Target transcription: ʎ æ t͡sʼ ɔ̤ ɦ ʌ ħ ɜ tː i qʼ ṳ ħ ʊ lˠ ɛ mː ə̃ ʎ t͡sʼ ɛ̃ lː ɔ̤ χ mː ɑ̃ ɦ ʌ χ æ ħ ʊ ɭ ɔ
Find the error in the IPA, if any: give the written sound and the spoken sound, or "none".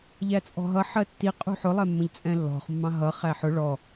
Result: none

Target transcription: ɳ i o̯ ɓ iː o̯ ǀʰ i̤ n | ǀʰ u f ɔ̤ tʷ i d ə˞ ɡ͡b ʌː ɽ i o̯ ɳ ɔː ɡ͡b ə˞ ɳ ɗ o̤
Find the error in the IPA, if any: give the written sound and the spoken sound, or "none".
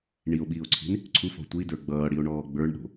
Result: none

